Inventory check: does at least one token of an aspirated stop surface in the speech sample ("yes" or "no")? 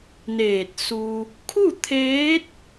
yes